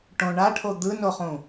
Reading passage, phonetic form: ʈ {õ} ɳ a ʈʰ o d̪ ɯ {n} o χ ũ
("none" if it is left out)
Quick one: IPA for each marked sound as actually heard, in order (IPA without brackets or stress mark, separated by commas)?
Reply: õ, n